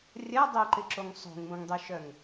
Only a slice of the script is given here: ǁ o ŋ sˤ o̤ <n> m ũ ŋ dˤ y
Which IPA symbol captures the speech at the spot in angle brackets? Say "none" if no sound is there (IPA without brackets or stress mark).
ŋ